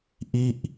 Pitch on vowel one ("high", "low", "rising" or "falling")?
falling